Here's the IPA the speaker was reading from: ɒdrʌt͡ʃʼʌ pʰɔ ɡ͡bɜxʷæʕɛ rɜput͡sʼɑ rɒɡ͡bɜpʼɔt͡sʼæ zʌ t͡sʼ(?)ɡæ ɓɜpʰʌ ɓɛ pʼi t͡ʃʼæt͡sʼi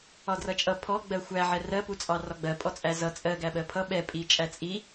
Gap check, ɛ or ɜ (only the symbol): ɜ